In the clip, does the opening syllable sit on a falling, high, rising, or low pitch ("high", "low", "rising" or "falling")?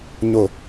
low